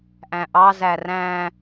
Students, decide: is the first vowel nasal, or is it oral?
nasal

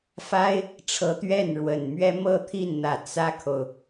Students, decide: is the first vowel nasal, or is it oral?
oral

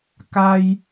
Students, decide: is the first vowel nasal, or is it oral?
oral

